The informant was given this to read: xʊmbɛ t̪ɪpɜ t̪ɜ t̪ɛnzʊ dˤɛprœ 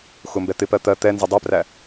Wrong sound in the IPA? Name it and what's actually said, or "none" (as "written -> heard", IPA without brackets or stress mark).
œ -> æ